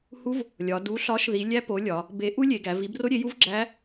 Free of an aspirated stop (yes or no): yes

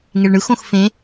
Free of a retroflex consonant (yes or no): no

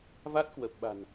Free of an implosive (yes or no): no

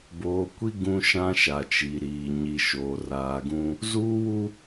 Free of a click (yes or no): yes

